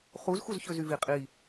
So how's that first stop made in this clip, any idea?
ejective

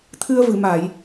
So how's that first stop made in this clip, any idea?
aspirated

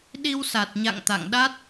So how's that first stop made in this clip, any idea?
implosive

